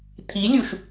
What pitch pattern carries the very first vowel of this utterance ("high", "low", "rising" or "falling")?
rising